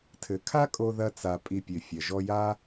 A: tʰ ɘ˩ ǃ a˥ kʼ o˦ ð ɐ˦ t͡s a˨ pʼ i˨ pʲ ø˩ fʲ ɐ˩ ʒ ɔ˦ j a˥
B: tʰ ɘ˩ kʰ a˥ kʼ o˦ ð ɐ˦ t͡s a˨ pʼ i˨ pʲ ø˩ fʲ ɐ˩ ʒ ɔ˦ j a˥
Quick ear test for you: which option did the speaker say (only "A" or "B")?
B